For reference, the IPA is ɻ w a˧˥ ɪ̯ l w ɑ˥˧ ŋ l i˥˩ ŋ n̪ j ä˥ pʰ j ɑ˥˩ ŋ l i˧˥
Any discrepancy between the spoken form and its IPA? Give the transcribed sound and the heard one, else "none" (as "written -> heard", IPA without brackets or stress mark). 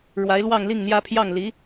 none